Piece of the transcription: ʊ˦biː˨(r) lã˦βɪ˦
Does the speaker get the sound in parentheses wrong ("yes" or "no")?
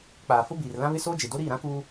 no